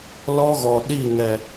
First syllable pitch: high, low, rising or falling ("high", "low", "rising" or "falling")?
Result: high